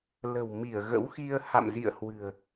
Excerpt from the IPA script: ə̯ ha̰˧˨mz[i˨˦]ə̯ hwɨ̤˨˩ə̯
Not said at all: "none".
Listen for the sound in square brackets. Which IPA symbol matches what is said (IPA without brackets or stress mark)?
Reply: ḭ˧˨